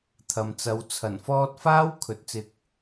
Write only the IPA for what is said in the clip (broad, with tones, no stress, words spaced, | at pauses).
t̪ʰɐ˨mt͡sɐ˨˧w t͡sʰɐ˨˩nfɔː˥t̚ faː˥w kʰɵ˨˥t̚t͡sɪ˧k̚